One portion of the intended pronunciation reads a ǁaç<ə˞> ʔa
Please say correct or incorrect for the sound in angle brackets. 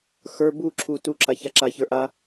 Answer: correct